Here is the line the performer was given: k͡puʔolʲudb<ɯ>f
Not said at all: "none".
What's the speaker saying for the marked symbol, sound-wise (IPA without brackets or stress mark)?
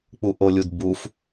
u